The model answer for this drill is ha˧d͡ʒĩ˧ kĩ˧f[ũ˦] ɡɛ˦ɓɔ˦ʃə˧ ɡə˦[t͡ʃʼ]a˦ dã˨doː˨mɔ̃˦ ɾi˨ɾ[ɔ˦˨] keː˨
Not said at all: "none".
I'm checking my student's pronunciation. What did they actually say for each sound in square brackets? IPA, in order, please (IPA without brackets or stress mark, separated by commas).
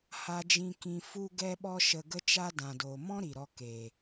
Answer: u˦, t͡ʃ, ɔ˧